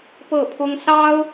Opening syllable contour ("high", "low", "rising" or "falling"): falling